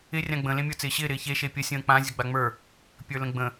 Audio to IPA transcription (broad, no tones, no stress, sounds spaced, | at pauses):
ɪ rʲ ã ɡ͡b ə̃ l ẽ mʲ ə˞ t͡s ɪː ɕ ɪː ɾ ɪː ç e ʃ e pʲ ə sʲ ə̃ː k͡p ã zʲ ə ɡ͡b a ŋ͡m ə˞ | pʲ ə˞ l ə̃ ɡ͡b ə̃